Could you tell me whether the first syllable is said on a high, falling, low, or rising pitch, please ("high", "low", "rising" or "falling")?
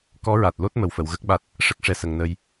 rising